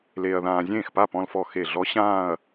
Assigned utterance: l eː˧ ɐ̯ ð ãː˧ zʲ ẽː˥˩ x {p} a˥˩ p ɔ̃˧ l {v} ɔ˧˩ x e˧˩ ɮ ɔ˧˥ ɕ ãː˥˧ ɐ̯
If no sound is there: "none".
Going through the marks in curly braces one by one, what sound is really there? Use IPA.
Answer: p, f

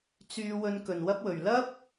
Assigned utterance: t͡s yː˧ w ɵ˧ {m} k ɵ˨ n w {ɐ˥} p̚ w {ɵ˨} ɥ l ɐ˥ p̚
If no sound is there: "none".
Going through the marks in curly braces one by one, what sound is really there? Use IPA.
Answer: n, ɐ˥, ɵ˨

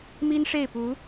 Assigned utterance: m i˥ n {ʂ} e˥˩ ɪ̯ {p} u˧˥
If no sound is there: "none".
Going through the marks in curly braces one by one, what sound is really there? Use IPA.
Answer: ʂ, p

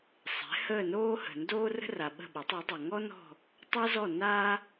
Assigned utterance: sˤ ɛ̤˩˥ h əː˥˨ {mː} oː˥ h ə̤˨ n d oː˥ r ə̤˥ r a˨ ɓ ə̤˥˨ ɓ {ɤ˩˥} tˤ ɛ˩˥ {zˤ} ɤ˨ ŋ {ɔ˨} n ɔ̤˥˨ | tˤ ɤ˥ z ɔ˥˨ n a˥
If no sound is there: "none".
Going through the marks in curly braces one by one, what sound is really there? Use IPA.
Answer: n, o˩˥, dˤ, ɔ˥

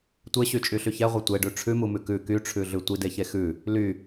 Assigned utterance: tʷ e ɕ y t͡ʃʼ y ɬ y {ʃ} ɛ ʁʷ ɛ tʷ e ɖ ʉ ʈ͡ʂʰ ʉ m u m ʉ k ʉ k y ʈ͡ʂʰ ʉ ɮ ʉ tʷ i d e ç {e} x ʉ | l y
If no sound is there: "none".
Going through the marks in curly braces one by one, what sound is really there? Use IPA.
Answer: ç, e

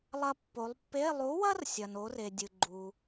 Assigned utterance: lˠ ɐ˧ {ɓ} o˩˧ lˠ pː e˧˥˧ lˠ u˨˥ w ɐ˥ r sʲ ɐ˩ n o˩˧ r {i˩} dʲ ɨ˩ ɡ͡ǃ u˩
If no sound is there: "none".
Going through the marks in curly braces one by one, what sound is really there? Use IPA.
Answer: pː, e˩

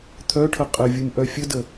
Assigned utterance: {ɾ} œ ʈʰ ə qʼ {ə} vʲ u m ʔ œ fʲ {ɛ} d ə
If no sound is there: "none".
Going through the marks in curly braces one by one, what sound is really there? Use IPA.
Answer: t̪ʰ, ə, ə

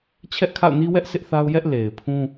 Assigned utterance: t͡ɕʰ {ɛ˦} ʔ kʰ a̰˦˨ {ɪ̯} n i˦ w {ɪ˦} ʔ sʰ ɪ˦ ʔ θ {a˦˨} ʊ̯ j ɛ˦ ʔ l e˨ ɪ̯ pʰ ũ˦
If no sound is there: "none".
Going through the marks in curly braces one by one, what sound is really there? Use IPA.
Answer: ɛ˦, ʊ̯, ɛ˦, a˦

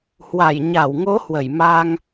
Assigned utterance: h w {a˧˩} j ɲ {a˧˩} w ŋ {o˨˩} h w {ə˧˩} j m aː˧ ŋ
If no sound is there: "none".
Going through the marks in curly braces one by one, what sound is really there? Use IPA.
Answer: a˧˩, a˧˩, o˨˦, ə˧˩

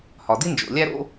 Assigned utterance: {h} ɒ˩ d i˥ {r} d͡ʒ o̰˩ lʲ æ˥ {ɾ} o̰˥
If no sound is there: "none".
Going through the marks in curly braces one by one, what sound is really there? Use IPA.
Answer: h, n, ɾ

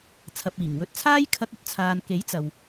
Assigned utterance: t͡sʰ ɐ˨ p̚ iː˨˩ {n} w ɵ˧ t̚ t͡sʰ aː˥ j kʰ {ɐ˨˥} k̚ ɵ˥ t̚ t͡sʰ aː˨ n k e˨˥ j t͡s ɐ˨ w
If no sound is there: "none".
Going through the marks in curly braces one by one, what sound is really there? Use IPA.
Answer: ŋ, ɐ˧

